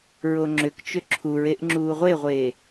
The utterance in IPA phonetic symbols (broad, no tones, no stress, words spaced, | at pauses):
ɹoŋ͡ǁʏkt͡ʃʏ ǁʰuɹeʔ ŋ͡ǁuːʁʷeʁʷeː